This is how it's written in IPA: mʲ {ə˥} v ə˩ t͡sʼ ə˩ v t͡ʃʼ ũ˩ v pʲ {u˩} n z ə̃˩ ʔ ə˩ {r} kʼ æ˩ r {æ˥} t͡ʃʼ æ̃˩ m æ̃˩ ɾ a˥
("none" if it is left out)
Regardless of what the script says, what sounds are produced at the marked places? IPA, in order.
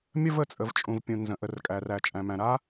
ə˥, ũ˩, r, æ˩

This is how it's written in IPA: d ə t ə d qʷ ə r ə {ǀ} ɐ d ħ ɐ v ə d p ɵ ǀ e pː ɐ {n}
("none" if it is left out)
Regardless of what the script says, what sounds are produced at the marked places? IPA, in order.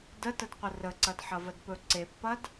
ǀ, d

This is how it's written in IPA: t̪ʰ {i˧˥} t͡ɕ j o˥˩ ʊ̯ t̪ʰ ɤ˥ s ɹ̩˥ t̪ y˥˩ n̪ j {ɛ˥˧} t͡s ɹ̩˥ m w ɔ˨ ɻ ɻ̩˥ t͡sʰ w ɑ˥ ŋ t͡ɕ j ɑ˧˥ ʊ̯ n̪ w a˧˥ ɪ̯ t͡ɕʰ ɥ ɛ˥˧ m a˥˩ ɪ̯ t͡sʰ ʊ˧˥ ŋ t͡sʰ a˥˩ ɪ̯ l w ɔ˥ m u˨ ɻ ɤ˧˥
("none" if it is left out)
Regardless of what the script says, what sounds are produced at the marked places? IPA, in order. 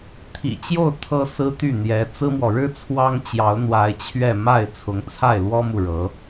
ḭ˨˩, ɛ˧˥

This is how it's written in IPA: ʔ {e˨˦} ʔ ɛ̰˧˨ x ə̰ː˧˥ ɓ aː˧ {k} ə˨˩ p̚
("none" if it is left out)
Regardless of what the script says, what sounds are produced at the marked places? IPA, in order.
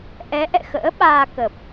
ɛ˨˦, k

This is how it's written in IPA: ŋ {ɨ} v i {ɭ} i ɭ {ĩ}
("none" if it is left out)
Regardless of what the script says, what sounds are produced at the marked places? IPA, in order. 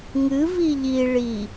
ɨ, ʎ, i

